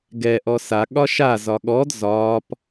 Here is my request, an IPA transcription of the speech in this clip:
ɡɛ ʔɔsa ɠɒʃa zɒɠɔd zɒːp

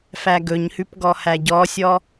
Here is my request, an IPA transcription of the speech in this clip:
fæɡɵɲhʉp ɡɔhæɟɔsʲɔ

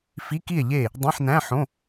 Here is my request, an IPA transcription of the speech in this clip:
fi˧˥˧ki˥˨e̯ʎe˥˨ | dˤæ̃˧˥˧ħnæ̃˧˥˧ħõ˧˥˧

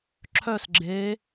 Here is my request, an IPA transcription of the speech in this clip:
ǁʰœs ɡ͡ǁe

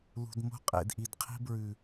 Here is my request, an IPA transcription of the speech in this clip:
lṳ˨dmo̤˦ qʼḛ˨dʔi˨dqʰi̤˦bɹʉ˨

